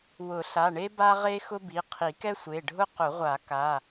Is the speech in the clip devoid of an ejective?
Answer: yes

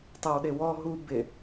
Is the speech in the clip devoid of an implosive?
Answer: no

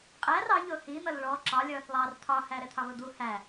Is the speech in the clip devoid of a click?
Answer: no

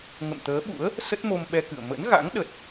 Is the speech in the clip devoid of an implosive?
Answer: no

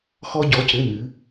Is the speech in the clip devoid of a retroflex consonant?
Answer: yes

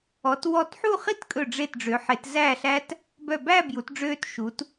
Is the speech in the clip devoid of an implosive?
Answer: yes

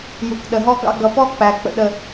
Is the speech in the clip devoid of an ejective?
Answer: yes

